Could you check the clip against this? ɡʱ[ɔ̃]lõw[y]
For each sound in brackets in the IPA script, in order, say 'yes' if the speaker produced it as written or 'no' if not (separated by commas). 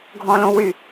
yes, yes